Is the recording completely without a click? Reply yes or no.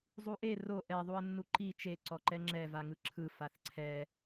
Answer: no